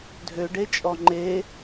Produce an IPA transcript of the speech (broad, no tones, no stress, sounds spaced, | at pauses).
dʱ ø ɖ e t͡ʃʼ ɔ ŋ͡ǃ e